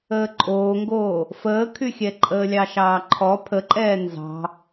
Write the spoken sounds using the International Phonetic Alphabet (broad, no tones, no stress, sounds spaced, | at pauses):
əː ǃʼ oː ŋ ɡ oː | f əː kʰ y xʲ ɛ ǃʼ əː lʲ ɑ ʃ ɑː ǃʰ ɔ pʰ ə ǃʼ ɛː n z ɑ̤